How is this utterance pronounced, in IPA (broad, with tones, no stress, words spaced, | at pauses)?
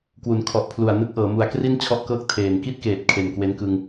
kwu˩˦nkʰɔ˨˩ʔpʰlu˨˩a̯ nɯ˥˩k̚ʔɤː˩˦ mu˩˦a̯kri˥˩n t͡ɕʰɔ˥˩ʔkɤː˥˩k̚ tʰeː˨˩n ki˥˩t̚keː˨˩t̚ kʰe˨˩nkwe˦˥nkɯ˧ŋ